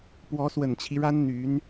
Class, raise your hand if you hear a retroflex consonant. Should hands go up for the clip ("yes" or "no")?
yes